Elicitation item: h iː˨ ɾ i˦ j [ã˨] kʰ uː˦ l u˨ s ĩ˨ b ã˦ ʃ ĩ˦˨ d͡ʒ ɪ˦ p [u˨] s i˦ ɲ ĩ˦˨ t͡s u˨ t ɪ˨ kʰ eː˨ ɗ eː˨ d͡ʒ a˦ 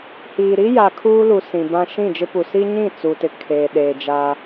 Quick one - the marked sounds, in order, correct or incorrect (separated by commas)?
incorrect, correct